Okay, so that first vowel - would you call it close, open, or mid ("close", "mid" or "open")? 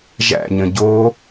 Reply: open